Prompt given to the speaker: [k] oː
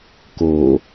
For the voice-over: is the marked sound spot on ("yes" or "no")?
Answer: yes